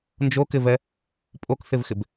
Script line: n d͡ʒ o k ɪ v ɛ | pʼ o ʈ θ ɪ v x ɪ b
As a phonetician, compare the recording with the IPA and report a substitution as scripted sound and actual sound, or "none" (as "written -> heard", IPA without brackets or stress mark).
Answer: ʈ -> k